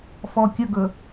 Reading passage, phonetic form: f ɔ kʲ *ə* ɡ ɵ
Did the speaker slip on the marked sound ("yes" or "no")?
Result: no